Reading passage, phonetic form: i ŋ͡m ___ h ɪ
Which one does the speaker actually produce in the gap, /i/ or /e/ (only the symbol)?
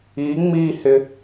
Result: i